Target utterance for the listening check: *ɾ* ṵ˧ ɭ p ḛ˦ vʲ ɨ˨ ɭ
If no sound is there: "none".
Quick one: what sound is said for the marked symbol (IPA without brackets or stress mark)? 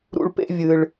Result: ɾ